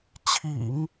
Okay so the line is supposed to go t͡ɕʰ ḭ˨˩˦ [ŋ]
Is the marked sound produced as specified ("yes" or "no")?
yes